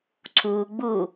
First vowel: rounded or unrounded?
rounded